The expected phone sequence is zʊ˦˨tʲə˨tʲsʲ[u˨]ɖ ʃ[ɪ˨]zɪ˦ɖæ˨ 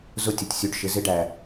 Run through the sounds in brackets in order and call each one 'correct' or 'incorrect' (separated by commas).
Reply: correct, correct